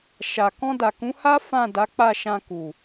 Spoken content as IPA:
ʃa˨ kɔ̃˧ da˨kũ˨˦ha˦ fã˦˨da˨˦k͡pa˦˨ ʃã˧ku˨

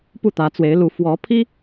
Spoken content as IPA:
pu˥˩t̪ä˧˥t͡swe˧˥ɪ̯lu˧˥ fwɔ˧˥pʰi˥

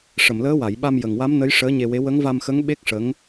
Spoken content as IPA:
ʂə˨˩˨mləː˧˥wa˨˩˨j ɓa˧mjə˨˩ŋwa˧˥mnə˧˥j ʂəː˧˥ɲe˧we˧˥ wə˧˥ŋva˧mxə˧˥ŋ ɓe˦˥k̚ʂə˧˥ŋ

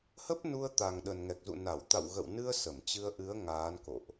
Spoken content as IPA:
hə˦˥p̚nu˧ə̯t̪a˨˩ŋ ɗə˨˩nŋɛ˨˩k̚zṵ˧˨ na˧˩w t̪a̰˧˨wɣə̰˧˨wnɨ˧ə̯ sə˧˩mt͡ɕɨ˧ə̯ʔɨ˨˦ə̯ ŋaː˨˦nko̰˧˨ʔ

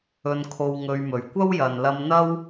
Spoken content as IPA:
ɵ˧nkʰo˧wŋɵ˧ɥmɵ˨ɥ kʷɐ˥wjɐ˨nlɐ˧mn̪ɐ˥w

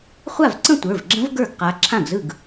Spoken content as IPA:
χʷa˥˩vǀə̃˥˧ tʷə˞˩˧˩vɡ͡ǁə̃˦˥v ɡə˞˥˩ɡqa˨˦ ǁʰã˥˩ɡzɯ˥˩ɡ

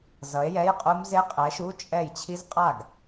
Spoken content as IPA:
zʌ˨˥e̯jɛ˧˥˧jqʼu˦˥mze˦˥ qʼɛ˨˥ʃu˧˥˧ t͡ʃʼɛ˥˩j t͡ɕʰi˦˥zqʼa˥˩ɡ

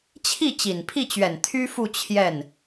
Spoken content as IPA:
t͡ɕʰi˥˩ t͡ɕi˨˩npʰi˥˩t͡ɕɥɛ˨˩n t̪ʰy˥fu˥˧ t͡ɕʰjɛ˥˩n

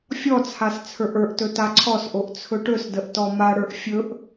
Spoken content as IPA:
fʲɔt͡sʰas t͡sʰə˞ʔə˞ʔtɵ taǀʰɔsʔoʔ t͡sʰɵʈɵsdəʔ tɔmaɽə˞ʔ fʲɵʔ

